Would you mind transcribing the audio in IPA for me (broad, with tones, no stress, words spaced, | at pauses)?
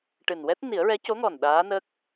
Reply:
ʈɨ˨˩nwɛ˦˥t̚ ni˨˩˦ə̯ɹɛ˧˥co˧˥ŋɔ˨˩n ɗaː˧˥nə˦˥k̚